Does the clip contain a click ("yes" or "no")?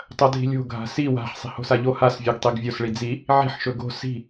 no